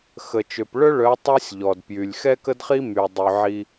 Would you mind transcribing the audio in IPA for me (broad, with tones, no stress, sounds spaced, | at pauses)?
x ə˨ t͡ʃ ø˨ p ɭ œ˦ ɭ œ˨˦ tˤ œ˦ sʲ ʎ ɔ˨ d p j y˨ lʲ x ɛ˦ k ə˦ d χ i˦ m y˨ dˤ y˨ ʕ i˦